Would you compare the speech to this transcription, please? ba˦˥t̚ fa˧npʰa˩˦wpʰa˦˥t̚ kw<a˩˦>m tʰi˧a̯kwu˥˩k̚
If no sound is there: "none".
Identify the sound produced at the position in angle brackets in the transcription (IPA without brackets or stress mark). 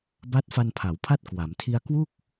a˩˦